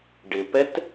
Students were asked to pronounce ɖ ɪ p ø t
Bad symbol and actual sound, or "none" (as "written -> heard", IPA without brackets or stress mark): ø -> ɛ